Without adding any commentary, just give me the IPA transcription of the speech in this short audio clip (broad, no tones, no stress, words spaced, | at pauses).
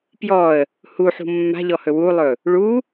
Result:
pjɔə̯ | huħṳ mːa̤ʎɔhɵ wulˠɵ | ɭu